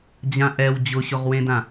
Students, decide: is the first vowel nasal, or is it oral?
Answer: nasal